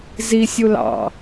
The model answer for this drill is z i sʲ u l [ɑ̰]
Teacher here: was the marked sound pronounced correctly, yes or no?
yes